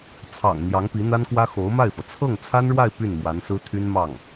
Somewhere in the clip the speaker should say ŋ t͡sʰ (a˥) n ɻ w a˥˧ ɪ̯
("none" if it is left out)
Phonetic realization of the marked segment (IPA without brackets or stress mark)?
a˥